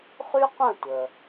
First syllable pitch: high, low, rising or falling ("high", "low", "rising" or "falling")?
high